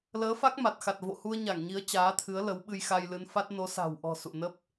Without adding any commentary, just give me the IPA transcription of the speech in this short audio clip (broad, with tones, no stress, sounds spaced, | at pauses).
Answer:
l əː˨˦ f a˦˥ k̚ m a˨˩ t̚ x a˨˩ t̚ v o̰˧˨ h u˧ ə̯ ɲ a˧˩ ŋ ɲ i˨˦ ə̯ t͡ɕ aː˨˦ t̪ʰ ɨ˨˦ ə̯ l ə˨˦ w ɓ ɨ˧ j x a˧ j l ɨ˨˦ n f a˦˥ t̚ n o˨˦ s a̤˨˩ w ʔ ɔ̤˨˩ s ṵ˧˨ n ə˦˥ p̚